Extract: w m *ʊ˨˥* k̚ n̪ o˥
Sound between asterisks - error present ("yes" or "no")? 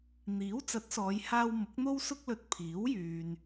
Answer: no